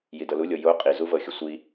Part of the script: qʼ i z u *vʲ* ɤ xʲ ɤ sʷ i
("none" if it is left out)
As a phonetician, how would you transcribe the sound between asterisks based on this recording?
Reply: v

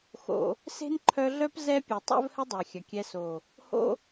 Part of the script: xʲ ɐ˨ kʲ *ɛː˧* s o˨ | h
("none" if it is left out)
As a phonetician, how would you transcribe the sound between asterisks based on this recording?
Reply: ɛ˧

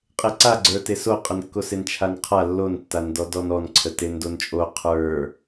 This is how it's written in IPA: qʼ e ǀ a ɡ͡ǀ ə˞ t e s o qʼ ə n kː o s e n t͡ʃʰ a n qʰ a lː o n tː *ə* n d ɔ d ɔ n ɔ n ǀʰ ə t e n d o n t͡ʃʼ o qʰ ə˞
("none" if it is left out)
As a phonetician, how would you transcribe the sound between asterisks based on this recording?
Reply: a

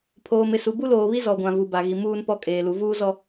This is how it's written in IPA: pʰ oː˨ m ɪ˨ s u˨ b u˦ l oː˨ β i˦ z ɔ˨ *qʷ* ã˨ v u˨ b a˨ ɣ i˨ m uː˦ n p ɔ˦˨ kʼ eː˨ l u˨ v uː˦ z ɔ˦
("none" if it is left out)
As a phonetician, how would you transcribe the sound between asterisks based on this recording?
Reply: ɡʷ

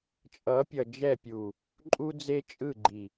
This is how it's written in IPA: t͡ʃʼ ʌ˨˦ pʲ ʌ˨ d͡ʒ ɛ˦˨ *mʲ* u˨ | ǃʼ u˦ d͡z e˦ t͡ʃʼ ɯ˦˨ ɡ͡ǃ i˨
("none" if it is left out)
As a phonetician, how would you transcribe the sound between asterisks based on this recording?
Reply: pʲ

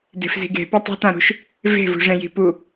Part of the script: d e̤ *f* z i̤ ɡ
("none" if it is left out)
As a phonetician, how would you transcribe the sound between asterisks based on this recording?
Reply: f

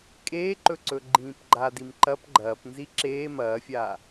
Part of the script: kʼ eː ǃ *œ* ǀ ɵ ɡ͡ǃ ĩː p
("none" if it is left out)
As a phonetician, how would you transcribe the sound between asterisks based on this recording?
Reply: ɵ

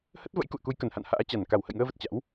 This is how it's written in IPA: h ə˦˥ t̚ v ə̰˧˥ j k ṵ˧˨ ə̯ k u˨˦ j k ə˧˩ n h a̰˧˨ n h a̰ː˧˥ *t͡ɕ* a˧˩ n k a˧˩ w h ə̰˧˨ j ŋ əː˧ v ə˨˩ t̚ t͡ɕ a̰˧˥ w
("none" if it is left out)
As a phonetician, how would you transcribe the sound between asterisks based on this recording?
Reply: t͡ɕ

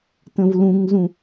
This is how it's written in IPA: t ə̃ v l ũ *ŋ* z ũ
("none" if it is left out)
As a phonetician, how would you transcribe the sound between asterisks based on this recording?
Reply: ŋ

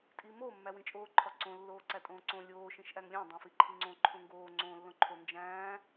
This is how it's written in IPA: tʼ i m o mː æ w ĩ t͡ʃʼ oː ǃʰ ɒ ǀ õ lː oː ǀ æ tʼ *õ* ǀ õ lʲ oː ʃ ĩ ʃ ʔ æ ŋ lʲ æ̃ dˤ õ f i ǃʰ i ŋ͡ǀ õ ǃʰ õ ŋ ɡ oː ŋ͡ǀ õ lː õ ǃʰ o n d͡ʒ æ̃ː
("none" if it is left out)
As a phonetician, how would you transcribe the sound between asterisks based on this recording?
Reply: õː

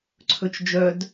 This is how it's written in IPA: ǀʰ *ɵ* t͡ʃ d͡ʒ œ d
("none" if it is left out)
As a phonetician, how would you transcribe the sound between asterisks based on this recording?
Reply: ɵ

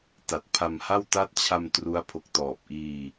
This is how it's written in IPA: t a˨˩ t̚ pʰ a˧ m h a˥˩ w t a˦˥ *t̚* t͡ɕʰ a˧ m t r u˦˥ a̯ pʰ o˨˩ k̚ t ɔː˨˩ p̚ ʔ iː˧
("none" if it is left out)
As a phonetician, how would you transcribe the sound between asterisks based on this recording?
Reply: t̚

